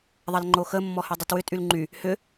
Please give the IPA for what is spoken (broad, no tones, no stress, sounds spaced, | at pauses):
ðˤ ɐ l ŋ͡ǃ o x ə mː ɔ h y dˤ y t w ʏ tʼ y l ŋ͡ǃ y | h ʏ